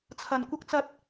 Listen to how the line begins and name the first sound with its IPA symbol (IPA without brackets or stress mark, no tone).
t͡sʰ